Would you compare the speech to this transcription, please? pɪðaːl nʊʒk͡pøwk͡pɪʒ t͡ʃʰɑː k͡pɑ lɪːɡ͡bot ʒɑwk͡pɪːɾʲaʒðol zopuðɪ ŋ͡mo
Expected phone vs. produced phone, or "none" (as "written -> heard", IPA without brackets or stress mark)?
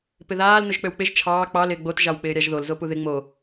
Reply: none